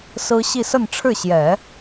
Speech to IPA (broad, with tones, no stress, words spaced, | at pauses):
sɹ̩˥ ɕi˥˧sə˥˧nʈ͡ʂʰɻ̩˥˩ɕjɛ˨˩˦